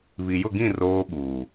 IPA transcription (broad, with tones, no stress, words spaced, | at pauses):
βi˨jʊ˦˨ɡĩ˦˨ roː˦ɓuː˨